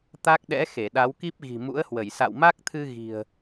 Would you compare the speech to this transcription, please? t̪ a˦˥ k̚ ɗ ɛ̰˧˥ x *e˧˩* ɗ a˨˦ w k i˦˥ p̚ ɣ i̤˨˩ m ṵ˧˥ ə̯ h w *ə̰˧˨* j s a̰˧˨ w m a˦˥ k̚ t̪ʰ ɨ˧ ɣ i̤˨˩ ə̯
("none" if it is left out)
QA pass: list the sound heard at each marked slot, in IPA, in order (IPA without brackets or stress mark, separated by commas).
e˧˩, ə˧˩